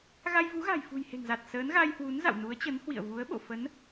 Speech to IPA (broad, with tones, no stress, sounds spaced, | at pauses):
ɣ a˧ j v u˨˦ ɣ a̤˨˩ j f ṳ˨˩ j h e̤˨˩ ŋ z a˨˩ t̚ s əː˨˦ n ɣ a˧ j h w u˨˦ n z a̰˧˨ w n u˨˦ ə̯ t͡ɕ ə˨˦ n h w ḭ˧˨ ə̯ v u˨˦ ə̯ ɓ o̰˧˨ f ə˨˦ n